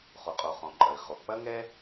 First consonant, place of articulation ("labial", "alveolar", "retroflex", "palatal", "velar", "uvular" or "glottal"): uvular